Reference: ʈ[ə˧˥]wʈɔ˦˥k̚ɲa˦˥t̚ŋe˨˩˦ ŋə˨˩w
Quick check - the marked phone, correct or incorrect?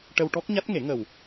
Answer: incorrect